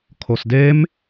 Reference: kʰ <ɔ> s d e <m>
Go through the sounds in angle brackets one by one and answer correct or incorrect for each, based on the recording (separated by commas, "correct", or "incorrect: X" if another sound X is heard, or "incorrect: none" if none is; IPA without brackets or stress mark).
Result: incorrect: o, correct